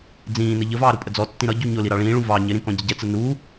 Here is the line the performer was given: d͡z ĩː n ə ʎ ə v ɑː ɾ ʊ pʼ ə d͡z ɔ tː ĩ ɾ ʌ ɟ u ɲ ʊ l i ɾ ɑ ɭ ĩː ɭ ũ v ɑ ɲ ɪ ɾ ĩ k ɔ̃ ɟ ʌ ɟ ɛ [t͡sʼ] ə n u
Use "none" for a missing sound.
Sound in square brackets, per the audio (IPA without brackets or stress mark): t͡s